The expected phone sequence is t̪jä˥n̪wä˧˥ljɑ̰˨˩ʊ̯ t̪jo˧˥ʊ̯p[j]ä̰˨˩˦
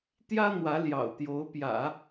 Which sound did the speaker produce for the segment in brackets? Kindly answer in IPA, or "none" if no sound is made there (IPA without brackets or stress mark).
j